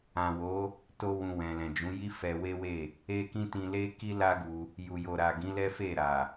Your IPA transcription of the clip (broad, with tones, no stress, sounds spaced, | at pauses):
ã˨ w o˨˦ | t o˧ w ũ˨ w ɛ̃˨ l ɛ̃˨ d͡ʒ ũ˨˦ j i˦ f ɛ˧ w e˦ w e˦˨ | e˧ k ĩ˧ t ĩ˧ l e˦ k i˦ l a˦ ɡ u˧ | j u˨ j o˨ ɾ a˨ ɡ ĩ˨˦ l ɛ˦ f e˦˨ ɾ a˨